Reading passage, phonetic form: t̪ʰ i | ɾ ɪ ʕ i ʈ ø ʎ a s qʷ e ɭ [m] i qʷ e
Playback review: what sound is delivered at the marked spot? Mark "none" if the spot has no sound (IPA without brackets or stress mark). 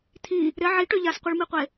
m